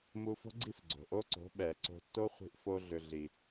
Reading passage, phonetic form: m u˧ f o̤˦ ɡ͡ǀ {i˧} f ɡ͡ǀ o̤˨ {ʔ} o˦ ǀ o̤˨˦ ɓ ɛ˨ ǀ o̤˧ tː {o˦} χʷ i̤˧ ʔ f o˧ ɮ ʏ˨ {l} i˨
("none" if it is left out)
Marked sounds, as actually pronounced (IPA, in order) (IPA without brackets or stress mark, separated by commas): i˦˨, ʔ, o˦, ɮ